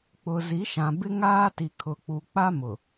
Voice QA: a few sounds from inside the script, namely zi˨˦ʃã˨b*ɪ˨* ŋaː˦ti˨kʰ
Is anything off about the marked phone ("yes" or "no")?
yes